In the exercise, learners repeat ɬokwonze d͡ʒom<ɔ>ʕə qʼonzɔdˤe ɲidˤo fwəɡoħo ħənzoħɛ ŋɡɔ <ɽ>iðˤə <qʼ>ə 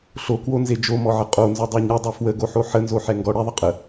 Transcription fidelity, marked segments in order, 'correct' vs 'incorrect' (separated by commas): correct, correct, correct